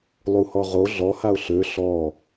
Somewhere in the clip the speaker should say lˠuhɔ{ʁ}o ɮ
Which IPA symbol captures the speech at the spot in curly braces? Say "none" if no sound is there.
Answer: ʁ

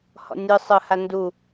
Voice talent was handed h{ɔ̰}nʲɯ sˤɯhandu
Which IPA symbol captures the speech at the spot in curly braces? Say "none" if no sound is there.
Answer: ɔ̰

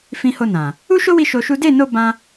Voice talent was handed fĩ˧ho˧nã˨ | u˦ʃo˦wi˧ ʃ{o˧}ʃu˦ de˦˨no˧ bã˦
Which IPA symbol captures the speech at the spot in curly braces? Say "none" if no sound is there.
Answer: o˧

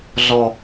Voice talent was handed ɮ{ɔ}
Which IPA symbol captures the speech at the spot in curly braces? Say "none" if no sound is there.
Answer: ɔ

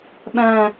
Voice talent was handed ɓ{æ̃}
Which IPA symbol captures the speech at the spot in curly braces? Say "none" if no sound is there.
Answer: æ̃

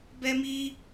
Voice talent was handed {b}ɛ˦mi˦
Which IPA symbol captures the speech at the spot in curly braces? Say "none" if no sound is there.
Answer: b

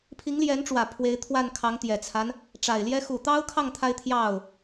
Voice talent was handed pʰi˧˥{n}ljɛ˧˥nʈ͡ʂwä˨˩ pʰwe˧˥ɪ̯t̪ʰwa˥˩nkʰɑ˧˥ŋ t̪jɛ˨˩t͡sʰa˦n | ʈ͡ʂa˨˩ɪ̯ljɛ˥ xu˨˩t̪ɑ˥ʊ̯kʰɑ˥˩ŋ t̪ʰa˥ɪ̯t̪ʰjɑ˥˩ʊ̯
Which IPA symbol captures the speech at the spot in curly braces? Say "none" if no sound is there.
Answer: ŋ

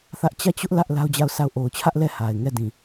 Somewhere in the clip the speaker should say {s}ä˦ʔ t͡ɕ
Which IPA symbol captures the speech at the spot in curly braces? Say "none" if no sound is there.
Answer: θ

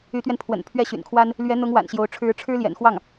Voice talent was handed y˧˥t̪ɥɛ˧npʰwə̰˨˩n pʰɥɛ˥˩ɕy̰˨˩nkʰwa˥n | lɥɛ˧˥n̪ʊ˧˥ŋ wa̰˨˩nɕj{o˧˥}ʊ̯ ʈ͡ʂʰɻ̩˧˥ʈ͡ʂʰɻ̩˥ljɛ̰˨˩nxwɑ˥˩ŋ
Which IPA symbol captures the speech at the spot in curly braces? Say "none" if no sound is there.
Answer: o˧˥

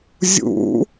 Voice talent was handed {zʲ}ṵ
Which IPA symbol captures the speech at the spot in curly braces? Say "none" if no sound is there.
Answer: zʲ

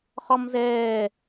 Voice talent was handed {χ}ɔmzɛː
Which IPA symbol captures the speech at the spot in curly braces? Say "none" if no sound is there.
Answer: χ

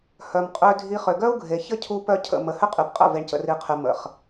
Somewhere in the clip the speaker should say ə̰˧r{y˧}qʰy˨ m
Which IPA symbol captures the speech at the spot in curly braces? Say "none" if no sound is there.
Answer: i˧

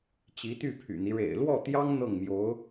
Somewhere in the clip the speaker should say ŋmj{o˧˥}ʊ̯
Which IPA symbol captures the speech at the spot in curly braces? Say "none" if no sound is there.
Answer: o˧˥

